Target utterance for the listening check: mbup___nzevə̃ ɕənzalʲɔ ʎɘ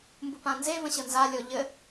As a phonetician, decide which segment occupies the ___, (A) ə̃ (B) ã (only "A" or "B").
B